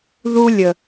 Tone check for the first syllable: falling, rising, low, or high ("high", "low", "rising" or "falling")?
high